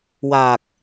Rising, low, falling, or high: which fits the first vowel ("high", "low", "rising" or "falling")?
low